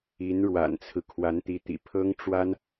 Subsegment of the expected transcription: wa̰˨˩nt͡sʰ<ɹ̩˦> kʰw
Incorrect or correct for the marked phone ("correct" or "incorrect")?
correct